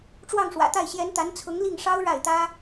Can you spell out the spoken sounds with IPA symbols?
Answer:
ʈ͡ʂ w ɑ˥˩ ŋ ʂ w ä̰˨˩ t̪ a˥˩ ɪ̯ ɕ j ɛ˧˥ n t̪ a˧˥ n t͡sʰ ʊ˧˥ ŋ l i˥˩ ŋ ʂ ɑ˥ ʊ̯ ɻ a˥˩ ɪ̯ t̪ ä˥

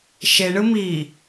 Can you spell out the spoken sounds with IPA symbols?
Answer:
ʃ e ɳ ɯ m i

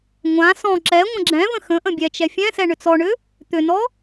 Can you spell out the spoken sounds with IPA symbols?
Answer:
ŋʷ ã s ɔ̃ ǁ ɛ ŋʷ ə̃ ɡ͡ǁ ɛ̃ v ə̃ x ə̃ ʔ ə̃ bʲ ɛ t͡ʃ ɛ fʲ ɛ̃ s ɛ ɳ ʏ t͡s ɔ ɳ ʏ | t̪ ʏ n ɔ

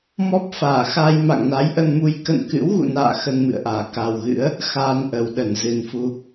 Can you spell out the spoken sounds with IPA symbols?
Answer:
m ɔ˦˥ p̚ f aː˧˩ x a˧ j m a̰˧˨ ŋ n a˨˦ j ʔ ə˧ n m u˧ j k ə̰˧˨ n k ɨ̰˧˥ w ɣ ṵ˧˨ n a̰ː˧˨ x ə˧ n m ɨ̰˧˨ ə̯ ʔ aː˧˩ k a˨˩ w ɣ ɨ̰˧˥ ə̯ | x aː˧ n ʔ ə˨˩ w ɗ ə˧˩ n z ɨ˨˩ n f u˧

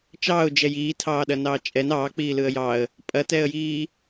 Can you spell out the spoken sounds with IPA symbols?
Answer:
t͡ʃ ɑː ʊ̯ d͡ʒ ɛ j iː tʰ ɑː ɗ ɐ n ɑː t͡ʃʼ ɛ n ɑː k͡p iː l ɯ ə̯ j ɑ ə̯ | pʼ ɐ t ɛ ə̯ j iː

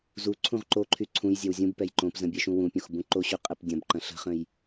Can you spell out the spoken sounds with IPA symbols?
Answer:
z u ǀʰ ũ ʁ ǃ o ǃʰ y ǀʰ ũ j zʲ ɛ w zʲ ũ b p ɛ j ǃ õ p z ə̃ bʲ ɛ ʃ ũ w ũ pʲ õ x b ũ ǃ o ɕ y qʼ ɛ p dʲ ɐ̃ b ǃ ɐ̃ ɬ ə̤ χ ə̃ j

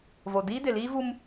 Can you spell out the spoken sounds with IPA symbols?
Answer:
v o˨ d iː˦ d ɪ˨ l iː˦ v u˦ m

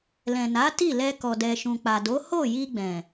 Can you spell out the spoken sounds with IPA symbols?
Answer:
l ɛ̃˨ n a˨˦ t i˦˨ l ɛ˧ k ɔ˨ d ɛ˨ ʃ ũ˨ k͡p a˨ d o˨˦ h o˦˨ j i˧ ɡ͡b ɛ̃˨

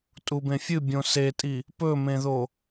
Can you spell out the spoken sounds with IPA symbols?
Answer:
tʼ u b ẽ fʲ ɨ bʲ õ s e tʼ i | p ɵ m ẽ ð o

